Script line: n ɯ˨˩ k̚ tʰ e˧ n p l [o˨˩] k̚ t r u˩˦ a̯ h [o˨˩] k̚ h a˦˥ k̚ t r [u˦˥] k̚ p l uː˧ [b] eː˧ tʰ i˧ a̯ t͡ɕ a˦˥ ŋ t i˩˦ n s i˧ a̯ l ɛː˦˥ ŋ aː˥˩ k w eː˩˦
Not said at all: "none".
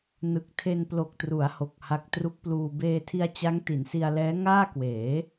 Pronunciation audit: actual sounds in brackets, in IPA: o˨˩, o˨˩, u˦˥, b

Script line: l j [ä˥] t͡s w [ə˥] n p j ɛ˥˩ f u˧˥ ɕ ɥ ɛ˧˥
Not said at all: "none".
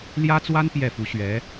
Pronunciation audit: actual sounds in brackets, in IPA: ä˥, a˥

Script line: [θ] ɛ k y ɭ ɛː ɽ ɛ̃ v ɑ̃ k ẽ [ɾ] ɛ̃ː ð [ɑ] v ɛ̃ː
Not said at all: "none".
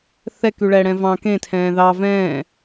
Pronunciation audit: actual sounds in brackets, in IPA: θ, tʰ, ɑ

